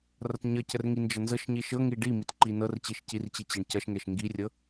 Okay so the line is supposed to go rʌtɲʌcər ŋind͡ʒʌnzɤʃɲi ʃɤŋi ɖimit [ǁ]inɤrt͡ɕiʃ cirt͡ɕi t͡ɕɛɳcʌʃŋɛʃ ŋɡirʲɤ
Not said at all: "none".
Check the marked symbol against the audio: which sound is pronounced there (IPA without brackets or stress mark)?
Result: ǃ